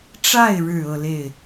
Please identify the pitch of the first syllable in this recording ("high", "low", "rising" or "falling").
falling